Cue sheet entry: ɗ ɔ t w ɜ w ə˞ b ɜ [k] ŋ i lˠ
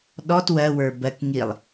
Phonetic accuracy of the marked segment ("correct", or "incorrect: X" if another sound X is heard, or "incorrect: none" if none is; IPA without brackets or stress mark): correct